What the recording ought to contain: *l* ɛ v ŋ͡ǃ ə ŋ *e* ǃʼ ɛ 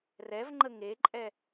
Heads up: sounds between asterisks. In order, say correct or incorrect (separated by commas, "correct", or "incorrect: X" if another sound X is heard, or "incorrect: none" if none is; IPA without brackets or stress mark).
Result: incorrect: r, correct